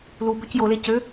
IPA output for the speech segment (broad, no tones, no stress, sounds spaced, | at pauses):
l u b ø c j o l e c ø